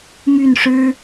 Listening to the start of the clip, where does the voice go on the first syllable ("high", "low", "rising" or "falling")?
falling